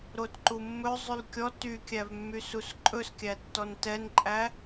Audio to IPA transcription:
ɾ o t ǃ u mː ɵ zˤ y l kʲ ɔ t y kʲ æ v mː y s u s ǃʼ ɵ s kʲ æ tː ɔ n t ɛ n ǃʼ æ

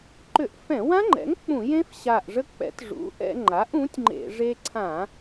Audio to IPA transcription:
ǃ ʏ˧˩˧ ʔ f ɛ̃˧˩˧ w ã˦˥ ŋ͡ǃ ɛ̰˩˥ ŋ k͡p ũ˧˩˧ j ẽ˦˥ f ɕ a˨˩ ʔ ʐ ə˧ k͡p ɛ̰˩˥ t ʐ ṵ˩˥ ʔ ɛ̰˧ ŋ͡ǃ a˩˥ ʔ ũ˩˥ tʲ ŋ͡ǃ ḛ˧˩˧ ʐ e˧ ǀʰ ã˧˩˧

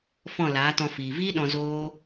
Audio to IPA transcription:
f ɔ̃˦˨ l aː˨˦ t ɔ̃˧ f iː˨ v iː˦ ɗ ɔ̃˧ z oː˦

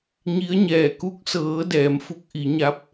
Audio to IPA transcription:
ɲ i˧˥ ə̯ ɲ ɛː˧˩ k u˧˥ k̚ s ɤː˩˧ d ɛː˩˧ m f u˧˥ k̚ ʔ i˩˧ ɲ a˧˥ p̚

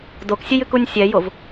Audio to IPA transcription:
d o k sʲ e j ɨ k u nʲ sʲ ɛ j o v

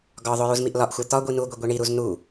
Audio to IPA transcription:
ɡ ɒ ðˤ o j u z m i ʔ l ɒ ʔ xʷ æ t̪ ɒ ɡʷ i n u ɡʷ e ɡʷ i ɳ i ɾ u z n u

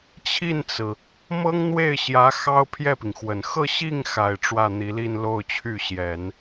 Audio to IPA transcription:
t͡ɕʰ i˥˩ n t͡s ɹ̩˩ | m ɤ˥ ŋ n̪ w e˥˩ ɪ̯ ɕ j ä˧˥ x ɑ˥ ʊ̯ pʰ j ɛ˥˩ p i˩ ŋ x w ə˨˩ n x ɤ˥˧ ɕ i˥˩ ŋ x a˨˩ ɪ̯ ʈ͡ʂ w ä˥˩ n̪ i˧˥ l i˥˧ n l o˥˧ ʊ̯ t͡ɕʰ y˥˩ ɕ j ɛ˨˩˦ n

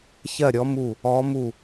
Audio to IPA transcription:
ç ɜ˥˨ ɾʲ ɔ˧˥ m u˥˨ | ɔ˧˥ m u˥˨

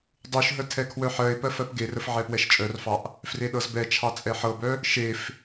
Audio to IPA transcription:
dˤ u ʃ ɦ ə tʰ ɛ kʰ w œ ħ ɜ ɪ̯ p ɜ f ɜ p ɡ e r ə f ʕ ɛ p w ɛ ʃ t͡ʃʼ œ r f ɑ ʔ | f r e ɗ ɤ z b ɛ t͡ʃʰ ɑ t͡sʼ ɛ ħ ɤ b œ | ʃ e f

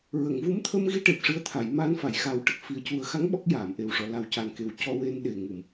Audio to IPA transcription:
ɹ ə˨˩˨ ŋ v u˧˥ m t̪ʰ ə˧ m ɣ i˧ ʈ e˨˩ p̚ ʂ ɨ˧˥ ə̯ t̪ʰ a˨˩˨ j m a˧ n f a˨˩˨ j x a˨˩ w ʈ ə˨˩ k̚ f i˨˩ ə̯ c u˨˩ ə̯ x a˧˥ ŋ ɓ ɔ˦˥ k̚ j aː˨˩˨ m ʔ e˨˩ w ʂ ɔ˨˩˨ l a˨˩ w c a˨˩ n k e˨˩ w c ɔ˧ w e˧ n ɗ e˨˩ ŋ u˨˩˨ m

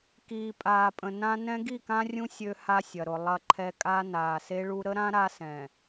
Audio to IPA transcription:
k iː˨ pʼ aː˨ pʼ ə̃˨ n ã˦ n ɛ̃˦ ɡ i˦˨ k ã˦ rʲ ũ˦ sʲ ø˦ h a˦ sʲ ɐ˨ ɾ ʊ˨ lˠ ɐ˦˨ ǃʰ ɛ˦ kʼ a˦ n aː˨ s e˦ ɭ u˦ ɾ ə˦ ɾ ã˦ ɾ a˦ s ɛ̃˨

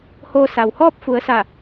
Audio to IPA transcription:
h oː˧ s a˩ w h ɔː˥˨ p̚ f u˩˧ ə̯ s a˧˩

